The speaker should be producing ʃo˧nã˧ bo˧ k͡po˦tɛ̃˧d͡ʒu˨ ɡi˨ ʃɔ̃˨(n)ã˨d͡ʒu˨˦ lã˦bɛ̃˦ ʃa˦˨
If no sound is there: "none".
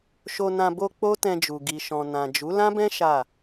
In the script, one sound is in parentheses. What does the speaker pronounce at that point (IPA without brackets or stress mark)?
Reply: n